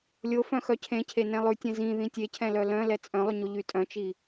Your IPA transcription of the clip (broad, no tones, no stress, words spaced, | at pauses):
lʲofœ̃ xœcʰẽcʰe nɛ̃lˠʉtʲɛ̃ zĩ ðĩtʲecʰɛ̃lœ lœ̃ lɛt͡sʼœ̃lˠyɲo ʎytʼœ̃t͡ʃi